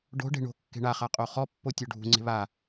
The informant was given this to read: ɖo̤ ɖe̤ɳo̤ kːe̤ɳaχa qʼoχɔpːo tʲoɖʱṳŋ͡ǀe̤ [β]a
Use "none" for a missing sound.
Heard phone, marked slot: β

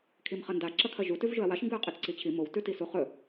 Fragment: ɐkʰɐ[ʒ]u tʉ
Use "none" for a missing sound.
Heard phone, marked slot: ʒ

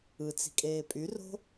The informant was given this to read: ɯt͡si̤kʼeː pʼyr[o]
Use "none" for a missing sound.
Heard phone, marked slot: o̤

